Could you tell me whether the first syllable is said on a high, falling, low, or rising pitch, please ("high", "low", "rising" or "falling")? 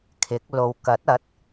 rising